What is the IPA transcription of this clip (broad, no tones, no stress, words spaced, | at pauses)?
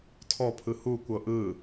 tʰɔpʰɯ hukʷɤ ʔɯ